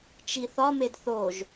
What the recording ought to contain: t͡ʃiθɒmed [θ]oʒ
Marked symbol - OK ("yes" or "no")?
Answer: yes